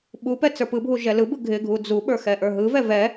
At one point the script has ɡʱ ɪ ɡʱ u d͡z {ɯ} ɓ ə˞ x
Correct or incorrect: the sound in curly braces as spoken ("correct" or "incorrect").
incorrect